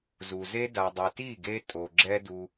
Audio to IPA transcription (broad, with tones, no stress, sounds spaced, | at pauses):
z u˨ z e˦ d a˨ dˤ e˨ t i˦˨ ɡ e˧ tʼ o˨ ɡ͡ǁ ɛ˦ d u˧